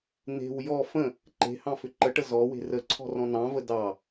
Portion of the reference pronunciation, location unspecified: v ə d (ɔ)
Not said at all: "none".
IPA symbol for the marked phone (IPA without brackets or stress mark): ɑ